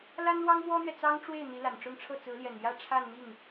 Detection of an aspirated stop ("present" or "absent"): present